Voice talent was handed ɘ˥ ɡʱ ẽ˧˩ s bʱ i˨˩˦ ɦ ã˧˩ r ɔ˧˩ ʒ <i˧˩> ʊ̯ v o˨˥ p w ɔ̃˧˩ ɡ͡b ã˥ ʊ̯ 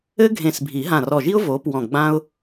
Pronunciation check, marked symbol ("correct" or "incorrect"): incorrect